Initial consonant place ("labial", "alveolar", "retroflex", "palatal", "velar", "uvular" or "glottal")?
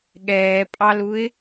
velar